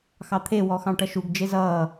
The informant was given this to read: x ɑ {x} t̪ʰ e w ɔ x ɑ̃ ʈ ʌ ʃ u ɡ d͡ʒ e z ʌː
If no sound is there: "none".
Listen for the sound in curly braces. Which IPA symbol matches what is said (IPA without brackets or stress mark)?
none